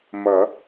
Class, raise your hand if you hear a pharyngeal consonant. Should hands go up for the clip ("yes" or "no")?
no